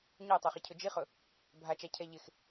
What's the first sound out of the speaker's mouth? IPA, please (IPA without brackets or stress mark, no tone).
ɲ